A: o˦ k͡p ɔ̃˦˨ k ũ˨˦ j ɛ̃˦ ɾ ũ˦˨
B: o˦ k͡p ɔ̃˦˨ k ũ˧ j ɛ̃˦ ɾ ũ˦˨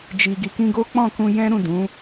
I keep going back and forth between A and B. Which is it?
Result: B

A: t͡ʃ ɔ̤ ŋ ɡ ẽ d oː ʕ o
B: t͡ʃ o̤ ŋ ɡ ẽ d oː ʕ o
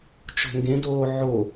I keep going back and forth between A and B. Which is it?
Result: B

